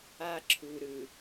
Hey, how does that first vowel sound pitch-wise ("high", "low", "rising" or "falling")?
high